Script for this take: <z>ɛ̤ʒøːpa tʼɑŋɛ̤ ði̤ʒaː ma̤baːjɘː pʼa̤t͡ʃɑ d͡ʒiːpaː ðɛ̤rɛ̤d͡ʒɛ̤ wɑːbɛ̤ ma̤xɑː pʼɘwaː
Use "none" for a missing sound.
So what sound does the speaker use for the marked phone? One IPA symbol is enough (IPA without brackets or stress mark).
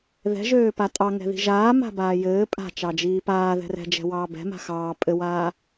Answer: ð